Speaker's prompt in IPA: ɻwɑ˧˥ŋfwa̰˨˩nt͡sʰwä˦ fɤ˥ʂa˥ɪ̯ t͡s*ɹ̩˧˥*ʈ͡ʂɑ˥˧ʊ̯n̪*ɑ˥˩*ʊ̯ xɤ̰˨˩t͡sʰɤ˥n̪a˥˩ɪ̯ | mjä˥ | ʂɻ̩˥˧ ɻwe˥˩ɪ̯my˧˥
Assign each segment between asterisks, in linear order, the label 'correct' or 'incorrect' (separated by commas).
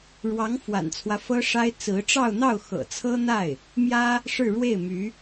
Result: correct, correct